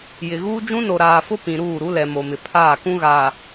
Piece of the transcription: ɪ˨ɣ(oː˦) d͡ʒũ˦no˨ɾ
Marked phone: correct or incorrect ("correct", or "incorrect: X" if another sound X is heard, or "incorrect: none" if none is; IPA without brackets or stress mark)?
incorrect: uː˦